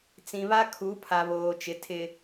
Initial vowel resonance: nasal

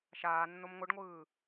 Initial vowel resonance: oral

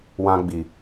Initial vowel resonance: nasal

